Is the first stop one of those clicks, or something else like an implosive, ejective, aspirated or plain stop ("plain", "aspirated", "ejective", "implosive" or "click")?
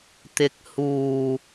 plain